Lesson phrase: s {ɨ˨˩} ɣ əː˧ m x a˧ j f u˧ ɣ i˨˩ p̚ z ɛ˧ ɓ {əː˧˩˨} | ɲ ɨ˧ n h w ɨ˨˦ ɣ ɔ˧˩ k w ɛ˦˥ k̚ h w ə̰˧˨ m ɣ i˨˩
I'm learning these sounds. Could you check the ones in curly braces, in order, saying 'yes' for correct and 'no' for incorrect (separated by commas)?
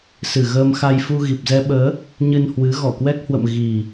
yes, no